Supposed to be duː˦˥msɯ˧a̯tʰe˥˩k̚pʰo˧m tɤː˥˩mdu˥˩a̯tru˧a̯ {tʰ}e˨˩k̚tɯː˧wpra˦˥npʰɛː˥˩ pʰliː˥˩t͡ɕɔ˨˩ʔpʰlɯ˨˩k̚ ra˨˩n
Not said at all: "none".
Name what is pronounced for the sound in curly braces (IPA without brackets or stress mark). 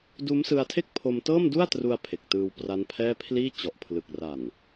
pʰ